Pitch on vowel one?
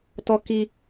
high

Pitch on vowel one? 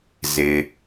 low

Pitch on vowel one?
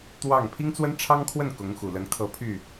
falling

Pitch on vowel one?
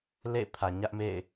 falling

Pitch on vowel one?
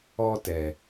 high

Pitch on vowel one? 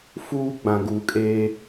high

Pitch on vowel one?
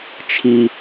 low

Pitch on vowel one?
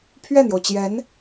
falling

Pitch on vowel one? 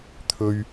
high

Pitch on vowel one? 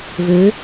rising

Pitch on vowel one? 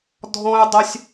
high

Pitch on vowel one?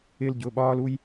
high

